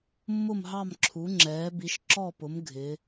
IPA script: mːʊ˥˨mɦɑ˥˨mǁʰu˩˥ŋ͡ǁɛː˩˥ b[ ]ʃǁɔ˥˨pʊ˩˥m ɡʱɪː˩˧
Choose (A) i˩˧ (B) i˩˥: B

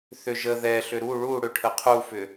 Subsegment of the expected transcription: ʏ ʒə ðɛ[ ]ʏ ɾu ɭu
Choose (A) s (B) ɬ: B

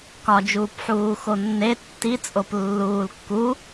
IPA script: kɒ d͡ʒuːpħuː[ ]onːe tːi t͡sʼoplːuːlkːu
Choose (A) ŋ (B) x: B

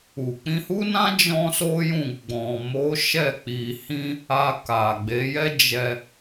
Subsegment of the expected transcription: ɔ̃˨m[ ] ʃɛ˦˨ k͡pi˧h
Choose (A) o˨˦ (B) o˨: A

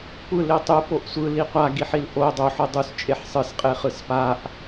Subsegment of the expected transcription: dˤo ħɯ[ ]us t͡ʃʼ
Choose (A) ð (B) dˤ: B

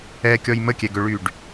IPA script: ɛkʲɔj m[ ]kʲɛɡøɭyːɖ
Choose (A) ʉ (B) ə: B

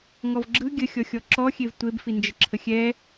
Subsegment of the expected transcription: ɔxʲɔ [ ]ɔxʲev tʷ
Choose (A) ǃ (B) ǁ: B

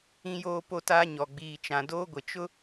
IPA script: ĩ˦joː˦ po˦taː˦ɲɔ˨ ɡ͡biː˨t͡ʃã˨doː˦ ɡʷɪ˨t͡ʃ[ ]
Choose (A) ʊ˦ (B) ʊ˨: A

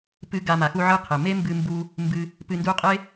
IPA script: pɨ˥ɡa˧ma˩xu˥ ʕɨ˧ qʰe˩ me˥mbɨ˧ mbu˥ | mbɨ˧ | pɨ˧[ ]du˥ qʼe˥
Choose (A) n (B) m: A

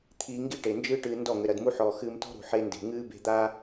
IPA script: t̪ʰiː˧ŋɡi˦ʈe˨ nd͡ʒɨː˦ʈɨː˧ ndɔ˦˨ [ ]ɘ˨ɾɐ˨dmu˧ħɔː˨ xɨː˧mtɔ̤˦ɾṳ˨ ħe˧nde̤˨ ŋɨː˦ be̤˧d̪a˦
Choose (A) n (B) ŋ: B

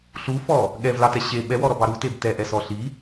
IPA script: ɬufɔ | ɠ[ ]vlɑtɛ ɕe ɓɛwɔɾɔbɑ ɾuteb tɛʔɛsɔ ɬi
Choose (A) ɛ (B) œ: A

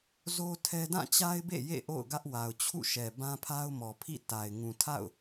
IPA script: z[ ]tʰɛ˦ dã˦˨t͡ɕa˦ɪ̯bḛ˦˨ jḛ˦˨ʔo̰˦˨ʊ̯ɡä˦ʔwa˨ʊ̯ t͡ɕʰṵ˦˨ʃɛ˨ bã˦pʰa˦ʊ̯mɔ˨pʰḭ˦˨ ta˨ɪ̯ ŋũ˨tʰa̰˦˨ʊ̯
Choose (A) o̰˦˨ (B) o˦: B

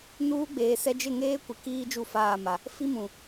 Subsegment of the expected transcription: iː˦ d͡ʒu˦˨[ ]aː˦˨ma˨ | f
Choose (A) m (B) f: B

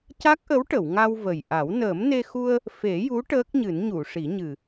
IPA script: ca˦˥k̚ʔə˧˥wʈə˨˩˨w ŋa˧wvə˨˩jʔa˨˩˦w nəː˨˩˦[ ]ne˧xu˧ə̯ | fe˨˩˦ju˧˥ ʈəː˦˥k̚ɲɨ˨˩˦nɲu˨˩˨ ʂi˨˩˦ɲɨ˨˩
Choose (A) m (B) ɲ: A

